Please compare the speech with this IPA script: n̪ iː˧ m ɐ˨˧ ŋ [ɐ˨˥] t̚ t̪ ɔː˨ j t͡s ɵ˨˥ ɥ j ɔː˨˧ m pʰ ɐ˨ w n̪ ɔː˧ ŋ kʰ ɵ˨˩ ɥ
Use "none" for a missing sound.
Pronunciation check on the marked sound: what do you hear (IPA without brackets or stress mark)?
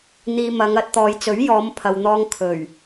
ɐ˨˥